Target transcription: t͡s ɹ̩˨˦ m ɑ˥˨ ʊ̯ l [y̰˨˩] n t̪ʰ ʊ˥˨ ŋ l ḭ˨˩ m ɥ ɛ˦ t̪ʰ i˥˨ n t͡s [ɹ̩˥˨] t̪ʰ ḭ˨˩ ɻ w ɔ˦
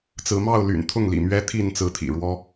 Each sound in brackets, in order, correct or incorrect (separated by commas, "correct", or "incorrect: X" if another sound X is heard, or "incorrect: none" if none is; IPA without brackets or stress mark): correct, incorrect: ɹ̩˨˦